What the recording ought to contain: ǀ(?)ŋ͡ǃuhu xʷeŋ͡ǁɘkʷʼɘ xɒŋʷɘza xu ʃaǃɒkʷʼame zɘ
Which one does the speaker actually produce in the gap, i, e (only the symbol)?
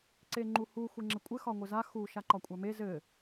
e